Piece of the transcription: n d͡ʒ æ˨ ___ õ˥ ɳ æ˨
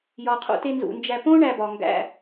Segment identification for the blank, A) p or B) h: A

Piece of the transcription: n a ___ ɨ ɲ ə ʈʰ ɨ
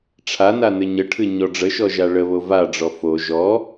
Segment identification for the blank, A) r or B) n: B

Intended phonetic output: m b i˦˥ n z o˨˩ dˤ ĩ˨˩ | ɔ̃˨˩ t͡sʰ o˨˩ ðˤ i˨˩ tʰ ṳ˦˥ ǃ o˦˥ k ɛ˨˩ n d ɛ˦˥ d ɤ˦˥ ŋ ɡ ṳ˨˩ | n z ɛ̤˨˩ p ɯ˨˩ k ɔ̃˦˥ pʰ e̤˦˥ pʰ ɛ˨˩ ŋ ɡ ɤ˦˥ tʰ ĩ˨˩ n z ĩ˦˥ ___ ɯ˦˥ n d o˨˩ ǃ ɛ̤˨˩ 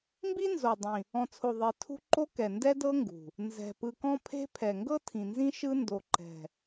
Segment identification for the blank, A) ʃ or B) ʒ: A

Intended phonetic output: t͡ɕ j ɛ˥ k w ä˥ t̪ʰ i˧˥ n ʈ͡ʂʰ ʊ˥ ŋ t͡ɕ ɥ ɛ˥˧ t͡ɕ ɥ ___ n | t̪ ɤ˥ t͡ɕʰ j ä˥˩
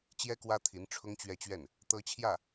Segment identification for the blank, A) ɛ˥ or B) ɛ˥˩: B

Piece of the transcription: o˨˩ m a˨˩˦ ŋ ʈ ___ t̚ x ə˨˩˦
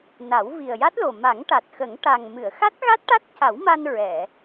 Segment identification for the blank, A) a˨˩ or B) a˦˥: A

